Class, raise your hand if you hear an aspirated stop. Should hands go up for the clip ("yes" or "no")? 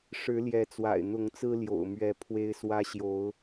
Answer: yes